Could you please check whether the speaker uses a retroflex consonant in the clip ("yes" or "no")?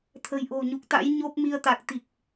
no